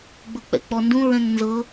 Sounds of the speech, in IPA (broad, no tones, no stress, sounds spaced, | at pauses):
ɡ͡b ɤ k͡p ɛ̰ k͡p ɔ n d ũ ɹ ɛ̃ ŋ n z ɤ